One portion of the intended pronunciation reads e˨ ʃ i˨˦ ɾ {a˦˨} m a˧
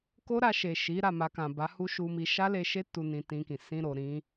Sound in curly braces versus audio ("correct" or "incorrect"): correct